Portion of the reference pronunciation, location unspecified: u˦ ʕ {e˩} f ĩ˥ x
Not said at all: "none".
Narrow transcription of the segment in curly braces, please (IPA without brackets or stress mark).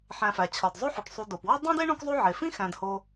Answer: e˩